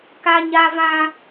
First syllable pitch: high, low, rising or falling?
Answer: high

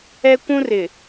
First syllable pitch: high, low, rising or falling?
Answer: high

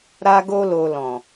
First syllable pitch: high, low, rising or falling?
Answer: high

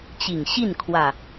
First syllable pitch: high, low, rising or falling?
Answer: low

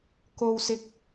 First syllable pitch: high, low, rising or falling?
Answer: high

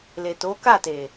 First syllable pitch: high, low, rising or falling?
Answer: low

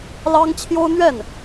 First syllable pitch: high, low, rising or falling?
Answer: high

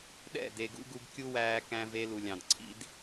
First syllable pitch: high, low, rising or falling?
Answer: falling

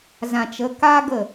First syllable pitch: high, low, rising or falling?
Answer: low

